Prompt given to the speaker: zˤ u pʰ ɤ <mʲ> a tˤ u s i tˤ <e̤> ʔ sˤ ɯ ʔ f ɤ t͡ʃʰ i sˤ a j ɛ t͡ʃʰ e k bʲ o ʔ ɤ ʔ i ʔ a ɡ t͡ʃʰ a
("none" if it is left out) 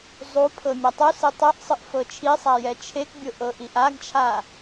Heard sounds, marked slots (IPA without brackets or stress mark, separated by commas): mʲ, e